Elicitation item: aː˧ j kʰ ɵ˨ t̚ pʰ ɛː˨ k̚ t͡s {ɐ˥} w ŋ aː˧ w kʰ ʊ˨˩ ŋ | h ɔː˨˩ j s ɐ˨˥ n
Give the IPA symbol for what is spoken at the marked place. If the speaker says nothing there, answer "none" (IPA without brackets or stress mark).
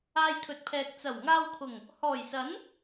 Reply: ɐ˨˩